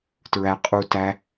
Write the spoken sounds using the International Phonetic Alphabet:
tɹæ qʼu tæ

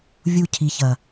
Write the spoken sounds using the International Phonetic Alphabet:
vʲu˧cʰi˨çɐ˨

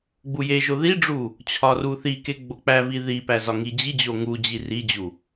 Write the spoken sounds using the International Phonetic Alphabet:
ɡ͡bujeʒo ðiɖ͡ʐu | t͡ɕʰɒruθike ɡ͡bok͡pævi ðipæ zɒŋid͡ʑid͡ʑo ŋu d͡ʑirid͡ʑu

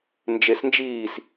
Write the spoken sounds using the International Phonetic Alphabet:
nd͡ʒesnd͡ʒiːs

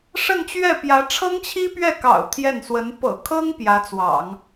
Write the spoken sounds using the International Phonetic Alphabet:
ʂə˥˧nt͡ɕɥɛ˥˩pjä˧˥ ʈ͡ʂʰɤ˥ŋt͡ɕʰi˥pɥɛ˥˩kɑ̰˨˩ʊ̯ t̪ʰjɛ˥˩nswə˧˥n pɤ̰˨˩kʰɤ˥ŋ pjä˧˥t͡swɑ̰˨˩˦ŋ

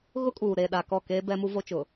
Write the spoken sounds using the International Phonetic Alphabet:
ɣʊ˦kʼuː˨ ɾeː˨ɗaː˨kɔ˦˨keː˦ bɛ˦mu˦vo˦t͡ʃʊ˨

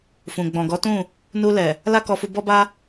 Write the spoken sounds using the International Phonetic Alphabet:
fũ˨ ɡ͡bɔ̃˨ɡɔ˨˦tũ˦˨ | nu˧lɛ˨ | la˦kɔ˧fu˧ bɔ˧ba˧

